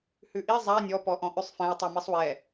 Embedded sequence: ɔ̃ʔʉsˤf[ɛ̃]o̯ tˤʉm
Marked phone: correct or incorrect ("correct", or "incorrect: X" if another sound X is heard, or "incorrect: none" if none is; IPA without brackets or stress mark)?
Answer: correct